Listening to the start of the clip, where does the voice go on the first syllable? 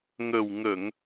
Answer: low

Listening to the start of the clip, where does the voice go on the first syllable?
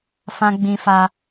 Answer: high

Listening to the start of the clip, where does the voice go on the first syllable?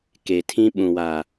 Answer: low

